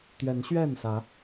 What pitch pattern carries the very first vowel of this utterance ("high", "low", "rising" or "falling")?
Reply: rising